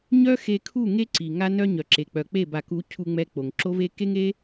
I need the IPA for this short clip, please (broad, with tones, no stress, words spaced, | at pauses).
ɲœ˦ xe˧kʰu˦˨ ŋe˦ ǀi˨ ŋa˦nœ˦ ɲœ˨ǁe˨k͡pœ˨ k͡pe˦˨ba˨ku˨˦ cʰu˧ŋ͡mɛ˧ k͡po˨ŋǁo˦ve˦ ke˦ŋe˦